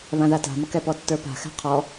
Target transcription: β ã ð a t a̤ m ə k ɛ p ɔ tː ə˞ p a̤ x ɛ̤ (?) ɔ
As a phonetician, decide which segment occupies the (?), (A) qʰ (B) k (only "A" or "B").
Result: A